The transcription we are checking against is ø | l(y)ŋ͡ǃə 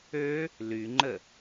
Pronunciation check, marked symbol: correct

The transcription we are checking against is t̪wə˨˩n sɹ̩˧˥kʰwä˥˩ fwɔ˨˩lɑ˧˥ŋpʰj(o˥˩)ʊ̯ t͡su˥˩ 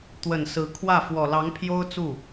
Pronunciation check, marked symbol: incorrect: o˥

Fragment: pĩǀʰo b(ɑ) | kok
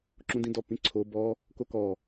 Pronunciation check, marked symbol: incorrect: ɔ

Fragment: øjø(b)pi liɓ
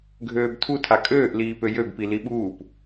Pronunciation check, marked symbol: correct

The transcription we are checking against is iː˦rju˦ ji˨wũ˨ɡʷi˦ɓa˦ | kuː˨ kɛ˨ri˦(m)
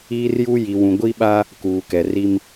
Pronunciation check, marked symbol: correct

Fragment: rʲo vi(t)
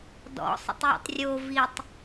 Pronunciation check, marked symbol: incorrect: tˤ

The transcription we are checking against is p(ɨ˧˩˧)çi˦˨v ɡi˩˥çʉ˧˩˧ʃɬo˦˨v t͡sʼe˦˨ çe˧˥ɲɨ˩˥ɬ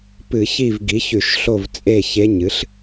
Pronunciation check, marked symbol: correct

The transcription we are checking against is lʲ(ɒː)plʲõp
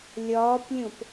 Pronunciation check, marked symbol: correct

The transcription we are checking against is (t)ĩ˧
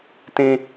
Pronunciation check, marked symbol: correct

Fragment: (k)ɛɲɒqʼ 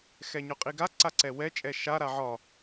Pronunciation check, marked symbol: incorrect: x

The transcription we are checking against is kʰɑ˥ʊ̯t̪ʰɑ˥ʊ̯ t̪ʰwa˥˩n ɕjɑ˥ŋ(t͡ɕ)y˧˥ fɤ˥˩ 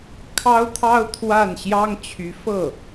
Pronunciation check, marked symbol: incorrect: t͡ɕʰ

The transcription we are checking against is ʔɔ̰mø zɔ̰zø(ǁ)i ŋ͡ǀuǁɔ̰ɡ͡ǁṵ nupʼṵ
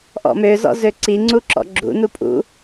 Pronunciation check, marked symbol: incorrect: ǀ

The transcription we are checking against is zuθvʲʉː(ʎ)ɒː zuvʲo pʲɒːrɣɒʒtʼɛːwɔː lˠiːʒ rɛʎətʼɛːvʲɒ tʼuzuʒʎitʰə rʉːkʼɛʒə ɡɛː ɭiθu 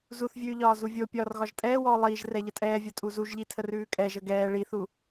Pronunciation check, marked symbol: correct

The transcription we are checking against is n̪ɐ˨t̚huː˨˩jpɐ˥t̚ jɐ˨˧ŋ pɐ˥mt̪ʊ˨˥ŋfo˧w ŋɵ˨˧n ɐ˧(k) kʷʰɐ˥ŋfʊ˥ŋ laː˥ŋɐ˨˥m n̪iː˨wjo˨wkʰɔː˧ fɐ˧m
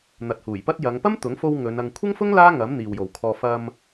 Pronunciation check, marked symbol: incorrect: ŋ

